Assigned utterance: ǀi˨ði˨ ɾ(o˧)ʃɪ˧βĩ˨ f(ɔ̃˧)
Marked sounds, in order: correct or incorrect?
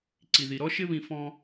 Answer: incorrect: ɔ˧, incorrect: ɔ̃˦

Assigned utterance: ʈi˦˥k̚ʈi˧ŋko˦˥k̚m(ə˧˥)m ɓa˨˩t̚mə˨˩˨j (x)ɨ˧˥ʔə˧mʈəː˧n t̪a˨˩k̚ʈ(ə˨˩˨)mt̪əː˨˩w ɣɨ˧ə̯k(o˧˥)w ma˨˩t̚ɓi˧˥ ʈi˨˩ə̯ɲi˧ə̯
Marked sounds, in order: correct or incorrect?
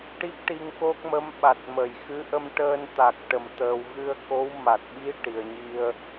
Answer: correct, correct, correct, correct

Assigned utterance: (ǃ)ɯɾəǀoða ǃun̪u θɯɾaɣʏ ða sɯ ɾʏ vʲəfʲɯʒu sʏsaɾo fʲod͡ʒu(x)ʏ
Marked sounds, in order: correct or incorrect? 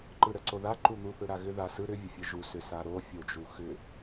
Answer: correct, correct

